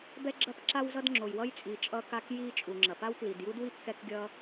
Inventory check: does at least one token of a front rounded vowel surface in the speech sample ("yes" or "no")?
no